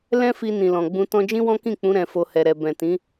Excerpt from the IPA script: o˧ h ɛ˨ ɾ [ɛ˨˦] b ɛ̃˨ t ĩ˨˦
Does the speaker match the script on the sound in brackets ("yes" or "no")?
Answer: no